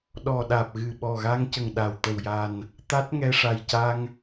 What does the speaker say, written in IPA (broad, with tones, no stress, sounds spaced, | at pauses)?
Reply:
ɗ ɔ˨˩ ɗ aː˨˩ p̚ ɣ ɨ˨˩ ɓ ɔ˨˩ ɣ a˧ ŋ c ə˨˩ ŋ ɗ a˨˩ w t̪ ə˨˩ w j a˨˩ n | t̪ a˦˥ t̚ ŋ ɛ˧ ʂ a˨˩ j c a˧ ŋ